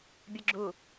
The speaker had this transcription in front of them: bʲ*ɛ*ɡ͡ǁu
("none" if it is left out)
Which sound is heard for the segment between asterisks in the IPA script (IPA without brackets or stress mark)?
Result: ə